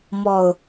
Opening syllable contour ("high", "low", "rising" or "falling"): low